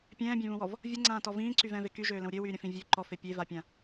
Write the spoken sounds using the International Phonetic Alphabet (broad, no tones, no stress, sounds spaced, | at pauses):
pʲ ɛ̃ː bʲ ɛ̃ β ũ w ɔ v | vʲ ə ŋ͡ǀ ãː t ɔ v ĩː ǀ y v ɛ̃ː v e k y ʒ øː l ə̃ w ɾʲ ø w yː ɾʲ ə̃ f ĩ vʲ ø ǃ ɔ f e pʲ e v a pʲ ã